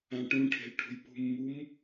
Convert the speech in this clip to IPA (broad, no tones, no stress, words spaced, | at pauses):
ãʈũʈʰe̤l ʈʰṳjpṳmːum